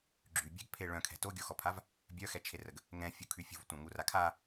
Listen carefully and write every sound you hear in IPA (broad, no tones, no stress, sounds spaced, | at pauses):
ɡ͡ǁ y bʲ ɛ̤ ɡ pʰ e ɭ œ̃ kʰ ɛ̤ t o ɡʲ o x ɔ pʰ a v | bʲ œ x ɛ t͡ʃʰ e r ə ɡ | ŋ ɛ̃ fʲ u kʰ y fʲ ṳ v tʷ ã ŋ u r a kʰ a